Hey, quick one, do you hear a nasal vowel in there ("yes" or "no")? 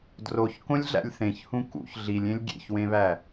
yes